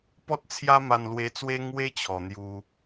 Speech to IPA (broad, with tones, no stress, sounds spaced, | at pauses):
p ɔ˦ t̚ t͡sʰ j a˦ m a˧ n l w e˧ t͡s w e˦ ŋ w e˦ t͡ɕʰ ɔ˨˩ n̪ j u˧